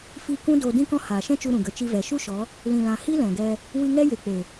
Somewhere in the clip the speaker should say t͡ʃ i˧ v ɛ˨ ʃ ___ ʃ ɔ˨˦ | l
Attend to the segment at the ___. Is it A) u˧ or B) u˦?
B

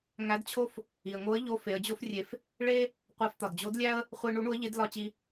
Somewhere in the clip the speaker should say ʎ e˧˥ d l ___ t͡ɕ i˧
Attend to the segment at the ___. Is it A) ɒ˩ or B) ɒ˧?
B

